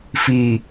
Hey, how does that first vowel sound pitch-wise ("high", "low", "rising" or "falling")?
low